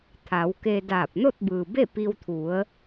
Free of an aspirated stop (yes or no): no